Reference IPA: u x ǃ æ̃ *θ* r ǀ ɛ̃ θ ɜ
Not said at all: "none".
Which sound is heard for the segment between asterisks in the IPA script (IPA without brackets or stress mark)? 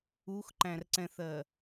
none